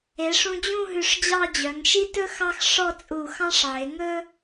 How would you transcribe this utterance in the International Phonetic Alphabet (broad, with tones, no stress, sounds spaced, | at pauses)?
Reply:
e˩˧ ʂ ũ˧ d͡ʑ ũ˥˧ ɦ ʉ˧˩ ʂ d͡ʑ ɑ˥˧ d͡ʑ œ˩˧ ŋ ʃ i˥ t ɵ˥ x ɑ˥ x ʂ ɔ˥˧ t͡sʼ u˧˩ x ɑ̃˥ ʂ ʕ e˩˧ ŋ ɵ˥